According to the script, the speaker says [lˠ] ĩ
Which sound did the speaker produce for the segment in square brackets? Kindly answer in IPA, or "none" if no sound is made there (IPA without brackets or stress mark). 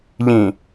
ʎ